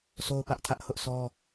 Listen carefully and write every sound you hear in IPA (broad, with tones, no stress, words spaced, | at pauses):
sʰo˦ʊ̯pä˦ʔtʰä˦ʔ hʊ˦ʔsɔ˦